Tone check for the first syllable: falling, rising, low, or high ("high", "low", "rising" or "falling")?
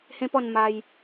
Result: high